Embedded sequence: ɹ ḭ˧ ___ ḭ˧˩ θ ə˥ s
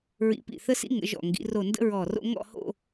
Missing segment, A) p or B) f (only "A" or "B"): A